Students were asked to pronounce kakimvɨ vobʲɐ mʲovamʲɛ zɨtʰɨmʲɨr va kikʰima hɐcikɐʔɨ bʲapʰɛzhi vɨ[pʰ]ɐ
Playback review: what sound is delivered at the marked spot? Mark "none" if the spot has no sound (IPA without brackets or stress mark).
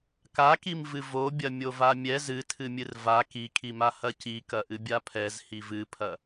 pʰ